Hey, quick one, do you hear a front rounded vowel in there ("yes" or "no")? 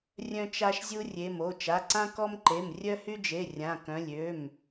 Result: yes